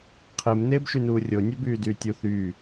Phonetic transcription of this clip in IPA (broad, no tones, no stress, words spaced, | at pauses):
qʰem neːbʃynuːrʲo nʲøbyːdyːtʲu θyː